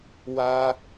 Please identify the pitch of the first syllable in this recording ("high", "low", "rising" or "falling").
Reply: high